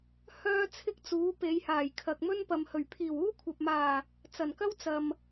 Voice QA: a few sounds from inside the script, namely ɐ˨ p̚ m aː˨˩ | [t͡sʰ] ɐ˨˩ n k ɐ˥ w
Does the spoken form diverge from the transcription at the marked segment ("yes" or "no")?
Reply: yes